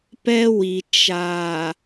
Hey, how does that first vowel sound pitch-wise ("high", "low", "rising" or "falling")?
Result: high